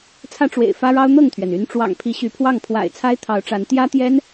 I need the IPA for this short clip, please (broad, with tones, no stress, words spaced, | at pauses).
t͡sʰä˦ʈ͡ʂwḛ˨˩ɪ̯ fä˦ɻɑ˦ʊ̯n̪ɤ˥˨ŋt̪ʰɥɛ˩n y˨˦nʈ͡ʂwɑ̰˨˩ŋpʰi˨˦ ɕy˨˦pʰwɑ˥˨ŋ pʰwa̰˨˩ɪ̯ t͡sʰa˦ɪ̯t̪ʰɑ˨˦ʊ̯ʈ͡ʂa˨˦n t̪jä˦t̪jɛ˦n